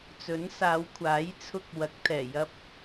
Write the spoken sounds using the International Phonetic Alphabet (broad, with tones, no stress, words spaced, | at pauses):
t͡sɵ˨˥nsaː˨˧wkʷʰaː˨˥jt͡sʰʊ˧k̚ wɐ˨˥k̚t̪ʰɛː˨˩ jɐ˧p̚